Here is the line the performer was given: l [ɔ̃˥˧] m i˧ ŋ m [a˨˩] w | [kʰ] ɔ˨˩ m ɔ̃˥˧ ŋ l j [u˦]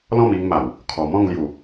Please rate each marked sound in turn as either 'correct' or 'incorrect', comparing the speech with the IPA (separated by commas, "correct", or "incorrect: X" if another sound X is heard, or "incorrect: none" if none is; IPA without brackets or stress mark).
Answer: correct, correct, correct, incorrect: u˨˩